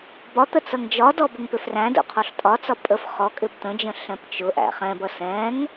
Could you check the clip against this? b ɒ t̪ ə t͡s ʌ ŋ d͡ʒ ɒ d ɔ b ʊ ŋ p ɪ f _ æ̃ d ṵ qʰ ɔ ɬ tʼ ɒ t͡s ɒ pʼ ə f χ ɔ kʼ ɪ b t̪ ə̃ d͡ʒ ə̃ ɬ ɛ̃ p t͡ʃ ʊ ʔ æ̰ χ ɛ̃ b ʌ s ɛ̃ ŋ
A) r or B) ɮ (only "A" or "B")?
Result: A